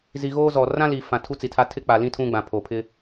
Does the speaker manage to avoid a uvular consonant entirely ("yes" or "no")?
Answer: yes